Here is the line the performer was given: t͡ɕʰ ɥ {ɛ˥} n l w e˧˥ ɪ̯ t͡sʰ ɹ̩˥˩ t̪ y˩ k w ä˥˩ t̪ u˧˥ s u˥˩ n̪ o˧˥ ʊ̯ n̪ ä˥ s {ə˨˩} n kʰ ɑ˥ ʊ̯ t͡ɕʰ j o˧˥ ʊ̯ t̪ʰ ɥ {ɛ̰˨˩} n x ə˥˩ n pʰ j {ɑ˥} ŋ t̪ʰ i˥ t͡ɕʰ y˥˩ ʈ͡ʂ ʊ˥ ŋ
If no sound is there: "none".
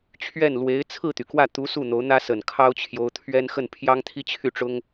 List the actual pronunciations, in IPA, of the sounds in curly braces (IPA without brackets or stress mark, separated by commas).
ɛ˥˩, ə˨˩, ɛ˥, ɑ˥